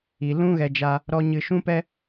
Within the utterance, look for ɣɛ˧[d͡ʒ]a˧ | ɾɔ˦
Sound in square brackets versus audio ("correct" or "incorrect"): correct